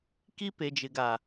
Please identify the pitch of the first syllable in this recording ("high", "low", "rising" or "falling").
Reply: high